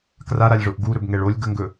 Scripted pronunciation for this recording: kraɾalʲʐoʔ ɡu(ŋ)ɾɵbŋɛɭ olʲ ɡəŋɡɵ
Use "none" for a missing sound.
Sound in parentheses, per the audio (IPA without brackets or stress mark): none